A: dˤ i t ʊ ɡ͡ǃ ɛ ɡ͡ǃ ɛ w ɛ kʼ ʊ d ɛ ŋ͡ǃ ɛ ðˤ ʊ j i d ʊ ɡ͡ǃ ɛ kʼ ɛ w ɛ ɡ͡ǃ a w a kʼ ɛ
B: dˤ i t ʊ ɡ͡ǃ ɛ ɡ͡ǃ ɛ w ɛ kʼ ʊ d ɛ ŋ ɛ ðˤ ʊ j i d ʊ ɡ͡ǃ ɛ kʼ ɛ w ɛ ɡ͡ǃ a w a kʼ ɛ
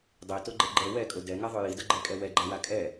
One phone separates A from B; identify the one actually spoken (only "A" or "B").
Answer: B